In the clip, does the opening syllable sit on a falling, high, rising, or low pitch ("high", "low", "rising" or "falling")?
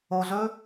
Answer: low